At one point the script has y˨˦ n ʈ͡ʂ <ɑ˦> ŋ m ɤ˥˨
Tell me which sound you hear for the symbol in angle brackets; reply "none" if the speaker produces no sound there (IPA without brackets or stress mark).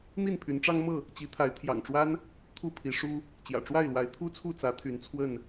ɑ˦